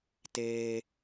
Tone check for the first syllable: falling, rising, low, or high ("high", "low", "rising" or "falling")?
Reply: high